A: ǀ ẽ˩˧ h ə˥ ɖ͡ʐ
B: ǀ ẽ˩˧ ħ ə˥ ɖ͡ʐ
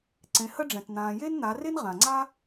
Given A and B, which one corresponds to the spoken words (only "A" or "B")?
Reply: A